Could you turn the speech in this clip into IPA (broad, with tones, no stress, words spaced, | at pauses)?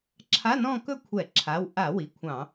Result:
ǁʰa˧˥˧ nɔ̃˥˧kɵ˥˧kʷʰɛ˧˩˧ǁʰa˩˧˩w ʔa˧˩˧ wi˩˧˩kʷʰɑ̃˧˩˧